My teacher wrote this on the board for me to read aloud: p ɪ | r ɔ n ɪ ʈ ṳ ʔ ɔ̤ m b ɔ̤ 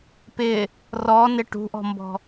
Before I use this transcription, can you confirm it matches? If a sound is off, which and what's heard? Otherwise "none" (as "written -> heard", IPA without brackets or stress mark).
none